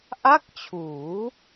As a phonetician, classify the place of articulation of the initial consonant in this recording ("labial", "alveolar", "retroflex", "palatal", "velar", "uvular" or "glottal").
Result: glottal